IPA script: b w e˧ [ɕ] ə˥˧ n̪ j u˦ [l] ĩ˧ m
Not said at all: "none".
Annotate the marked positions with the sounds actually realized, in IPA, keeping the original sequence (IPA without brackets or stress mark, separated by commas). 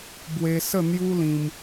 s, l